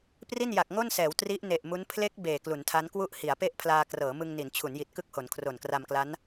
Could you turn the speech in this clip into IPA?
p r i˥˩ n j a˨˩ k̚ ŋ o˥˩ n s ɛː˩˦ w t r i˦˥ ʔ n e˨˩ ʔ m u˦˥ n pʰ l e˦˥ k̚ b eː˨˩ k l u˩˦ n tʰ a˦˥ n k w u˥˩ ʔ h i˩˦ a̯ p e˥˩ ʔ pʰ l aː˧ k r ɤː˩˦ m ɯ˧ ŋ n i˩˦ n t͡ɕʰ u˩˦ n j i˨˩ t̚ k ɯ˥˩ k̚ h o˩˦ n kʰ r o˨˩ n k r a˧ m k l a˦˥ n

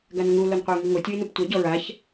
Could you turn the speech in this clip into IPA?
ɡ a n ŋ u l o n qʷ e ʊ̯ ŋ i ŋ o tʲ ɯ ɪ̯ n u p tʷ ɛ ɟ ɔ ɹ a ç

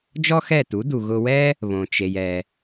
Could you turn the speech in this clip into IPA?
d͡ʒ ɔ˥ x ɛ˥˩ t u˩˥ d u˩ ɣ ʊ˧ w ɛ˥ | β õ˩ t͡ʃ e˩ j ɛ˩

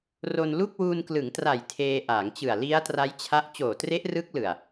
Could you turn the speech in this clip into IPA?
r o˧ n l u˥˩ k̚ w uː˧ n k l ɯ˩˦ ŋ t r a˨˩ j tʰ eː˧ ʔ aː˩˦ ŋ t͡ɕ ɯ˨˩ a̯ l i˦˥ a̯ t r a˦˥ j t͡ɕʰ a˦˥ ʔ t͡ɕ oː˨˩ t r e˦˥ ʔ r ɯ˦˥ k̚ l ɯ˨˩ a̯

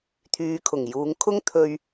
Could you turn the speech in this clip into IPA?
t̪ʰ yː˨˧ kʰ ʊ˨˩ ŋ j uː˨˧ ŋ kʰ ʊ˥ ŋ t̪ʰ ɵ˧ ɥ

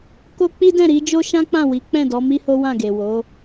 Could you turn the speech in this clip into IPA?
k o˦ k͡p i˦ d ɛ̃˦˨ ɾ i˨˦ d͡ʒ o˦ ʃ ã˦ k͡p ã˦˨ w i˨˦ k͡p ɛ̃˦˨ d ɔ˨˦ m i˦ h o˦ w ã˦˨ ɡ e˨ w o˨˦

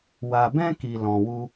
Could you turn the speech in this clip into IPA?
w a˨ b ɛ̃˧ k i˨ l ɔ̃˨ w u˧

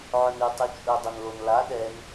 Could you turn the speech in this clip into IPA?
ʕ ɵ n ʉ tˤ ʉ t͡ʃʼ ɵ dˤ ɵ n l o n l a ɗ ɛ n

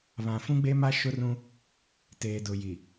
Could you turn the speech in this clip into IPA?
β ã˨ f ũ˦ ɡ͡b e˦ m a˦ ʃ ʊ˦ r ũ˦ | t eː˨ d ʊ˨ j i˨

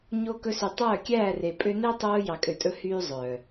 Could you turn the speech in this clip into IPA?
ɲ o˧ k ɵ˧ s y˨ tˤ œː˦˨ kʲ æː˦˨ r e˨ pʼ ø˧ n e˦ tˤ oː˧ j ɑ˨ kʼ ø˨ tʼ ɵ˧ h yː˦ zˤ œː˨

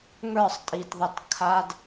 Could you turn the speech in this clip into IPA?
ŋ ə˞˦˨ sˤ tʼ i˧ t ðˤ ə˧ t kʰ a˦ d

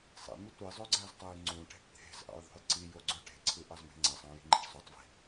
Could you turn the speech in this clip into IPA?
sˤ ḛ m y tʷ i zˤ ø ɡ͡ǀ æ z tˤ æ j ŋ͡ǀ ũ ʈ e̤ ʈ t̪ʰ e̤ z ʔ ɑ̰ j ðˤ o̤ j ǀ i j o ɡ͡ǀ ø ʈ e̤ ǀʰ ɯ ʔ ɑ z m e̤ ŋ͡ǀ æ sˤ ɑ̃ j i̤ ŋ͡ǃ i̤ ʈ sˤ ø tˤ v i̤

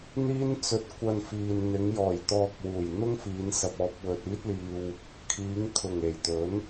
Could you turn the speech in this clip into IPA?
n̪ iː˥ n t͡s ɵ˧ t̚ kʷ ɐ˧ n f iː˨ n n̪ ɪ˨˧ ŋ j ɔː˨˩ j t̪ ɔː˧ k̚ w uː˨˩ j n̪ ʊ˥ ŋ f iː˨˧ n s ɐ˨ p̚ ɔː˨˥ p̚ w ɵ˨ t̚ iː˥ t̚ l iː˧ w | kʰ iː˨˧ ŋ kʰ ʊ˨˩ ŋ e˨˩ j t̪ ɵ˨˥ n

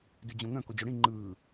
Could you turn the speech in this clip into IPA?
d ʉ d͡ʑ õ ŋ œ̃ k o d͡ʑ o ɽ ĩ ŋ͡ǃ ɯː

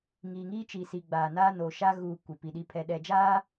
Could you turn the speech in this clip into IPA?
ŋ iː˨ ŋ iː˦ t͡ʃ i˨ s i˨ ɡ͡b aː˨ n aː˦ n oː˨ ʃ a˦ ɣ uː˨ kʷ e˨ p i˨ ɗ i˦ pʰ ɛ˨ ɗ ɛ˨ d͡ʒ aː˦

